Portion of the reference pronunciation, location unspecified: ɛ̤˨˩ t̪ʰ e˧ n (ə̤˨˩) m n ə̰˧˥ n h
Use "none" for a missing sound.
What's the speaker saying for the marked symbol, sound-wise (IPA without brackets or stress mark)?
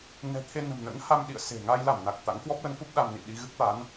ə̤˨˩